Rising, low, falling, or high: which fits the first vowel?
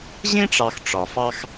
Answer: high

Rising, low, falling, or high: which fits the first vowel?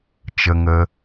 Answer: high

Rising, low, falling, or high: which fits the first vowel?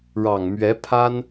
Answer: low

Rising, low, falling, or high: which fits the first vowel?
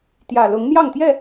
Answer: low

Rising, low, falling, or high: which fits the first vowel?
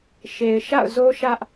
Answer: low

